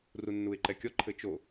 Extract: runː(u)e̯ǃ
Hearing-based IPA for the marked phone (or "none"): u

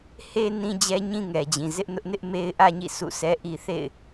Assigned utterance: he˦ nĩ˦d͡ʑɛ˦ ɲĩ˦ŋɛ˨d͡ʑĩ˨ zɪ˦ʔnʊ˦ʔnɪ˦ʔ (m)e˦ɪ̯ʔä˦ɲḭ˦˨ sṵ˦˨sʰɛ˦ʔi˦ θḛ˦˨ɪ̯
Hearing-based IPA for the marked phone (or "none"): m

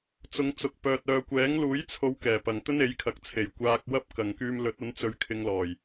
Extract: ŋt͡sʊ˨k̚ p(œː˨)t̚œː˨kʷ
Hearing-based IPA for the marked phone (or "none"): œː˨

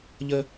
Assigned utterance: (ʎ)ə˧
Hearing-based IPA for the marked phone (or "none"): ʎ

